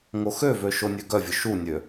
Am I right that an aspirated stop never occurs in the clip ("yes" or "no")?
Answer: yes